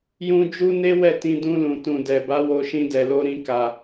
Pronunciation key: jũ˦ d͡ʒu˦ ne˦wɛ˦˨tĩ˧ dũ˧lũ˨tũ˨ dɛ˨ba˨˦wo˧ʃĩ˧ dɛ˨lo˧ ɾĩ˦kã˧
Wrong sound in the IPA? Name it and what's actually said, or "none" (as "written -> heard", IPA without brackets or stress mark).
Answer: ã˧ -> a˧